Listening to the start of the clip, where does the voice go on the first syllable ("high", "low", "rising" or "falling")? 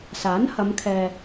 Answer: rising